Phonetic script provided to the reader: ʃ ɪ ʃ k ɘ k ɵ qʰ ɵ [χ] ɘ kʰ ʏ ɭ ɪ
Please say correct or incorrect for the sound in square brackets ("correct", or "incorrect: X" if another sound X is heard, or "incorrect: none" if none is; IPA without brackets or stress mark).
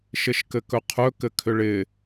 incorrect: k